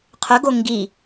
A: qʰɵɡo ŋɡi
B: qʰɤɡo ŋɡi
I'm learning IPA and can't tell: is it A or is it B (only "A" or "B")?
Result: A